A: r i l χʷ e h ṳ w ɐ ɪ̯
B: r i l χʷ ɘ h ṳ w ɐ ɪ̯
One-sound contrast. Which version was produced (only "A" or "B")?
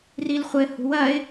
B